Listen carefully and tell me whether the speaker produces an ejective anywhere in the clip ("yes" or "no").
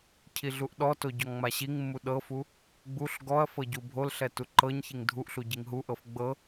no